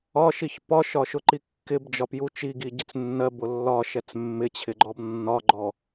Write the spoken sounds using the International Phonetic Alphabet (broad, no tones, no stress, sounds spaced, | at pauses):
ɒ ʃ i ç p ɒ ʃ ɒ ʃ ʊ ǃ i kː ɪ b d͡ʒ ɒ p j u t͡ʃ i ɡ i ɟ ɪ t͡s nː ɜ b ʊ lː ɒ ʃ ɛ t͡s mː ɪ t͡ɕʰ ɪ ɡ͡ǃ ɔ b nː ɒ ɡ͡ǃ ɔ